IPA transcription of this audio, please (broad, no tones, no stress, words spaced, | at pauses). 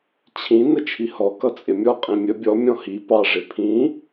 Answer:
t͡ɕʰĩ nət͡ʃʰihɔ kʌt͡sʼɪmʲɔ qʼĩmʲə bʲɔ mʲɔ̃hi pɑʐɪ pʰĩ